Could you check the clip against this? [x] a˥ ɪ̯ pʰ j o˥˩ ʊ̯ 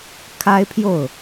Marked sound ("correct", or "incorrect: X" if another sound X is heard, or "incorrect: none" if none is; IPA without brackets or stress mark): incorrect: kʰ